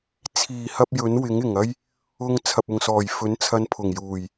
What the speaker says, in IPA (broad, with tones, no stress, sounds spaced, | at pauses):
t͡sʰ iː˨˩ h ɐ˧ p̚ j ɵ˨˥ n w ɪ˨˥ ŋ ɪ˨˩ ŋ ɐ˥ j | ʊ˧ ŋ t͡sʰ ɐ˨ p̚ ʊ˨ ŋ s ɔː˨˩ j f ɵ˨˥ n t͡sʰ ɐ˧ n pʰ ʊ˨˩ ŋ j uː˨˩ j